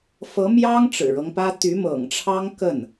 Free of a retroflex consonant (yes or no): no